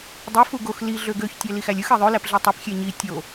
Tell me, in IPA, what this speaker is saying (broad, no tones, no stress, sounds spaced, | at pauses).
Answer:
dˤ ɯ f u ɡ o x l i ɮ ø ɡ ø ç tʲ æ l i x æ lʲ ɯ x e ðˤ ø l æ p ɮ i tˤ i p xʲ e ɲ i tʲ o